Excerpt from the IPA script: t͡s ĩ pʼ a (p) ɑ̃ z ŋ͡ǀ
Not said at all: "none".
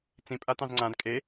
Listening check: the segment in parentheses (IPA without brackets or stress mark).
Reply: t